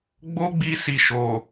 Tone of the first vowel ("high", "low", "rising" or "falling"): high